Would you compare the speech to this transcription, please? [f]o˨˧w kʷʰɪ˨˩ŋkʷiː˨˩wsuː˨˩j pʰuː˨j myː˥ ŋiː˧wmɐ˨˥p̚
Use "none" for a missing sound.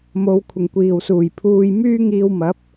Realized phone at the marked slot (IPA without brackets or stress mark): m